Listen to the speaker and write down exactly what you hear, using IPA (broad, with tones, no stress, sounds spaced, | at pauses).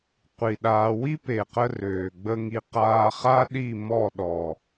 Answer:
qʷ i˨ ɗ aː˧ w i˦ p e˨ q ə˧ r øː˨ ɡ͡b ə˦ ŋ i˧ q aː˧ χ a˦ ɗ i˦˨ m ɔ˦˨ ɗ ɔ˨